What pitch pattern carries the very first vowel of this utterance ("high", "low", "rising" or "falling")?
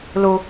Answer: low